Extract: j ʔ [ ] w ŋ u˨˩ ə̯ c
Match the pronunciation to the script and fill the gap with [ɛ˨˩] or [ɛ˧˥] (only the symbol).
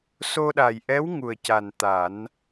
ɛ˧˥